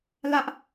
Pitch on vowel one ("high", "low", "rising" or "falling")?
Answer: high